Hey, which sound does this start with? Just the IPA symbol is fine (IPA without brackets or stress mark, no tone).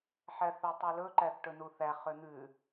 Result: ħ